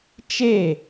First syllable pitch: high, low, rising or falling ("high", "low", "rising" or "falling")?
falling